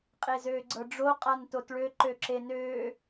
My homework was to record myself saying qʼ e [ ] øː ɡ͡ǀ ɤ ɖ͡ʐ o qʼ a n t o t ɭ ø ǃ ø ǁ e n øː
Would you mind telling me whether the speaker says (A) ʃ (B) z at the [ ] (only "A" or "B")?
B